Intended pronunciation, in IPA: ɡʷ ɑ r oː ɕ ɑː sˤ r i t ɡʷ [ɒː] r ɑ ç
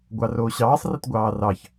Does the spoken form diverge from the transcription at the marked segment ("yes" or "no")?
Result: yes